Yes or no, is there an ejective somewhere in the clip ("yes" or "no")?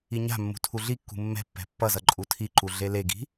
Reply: yes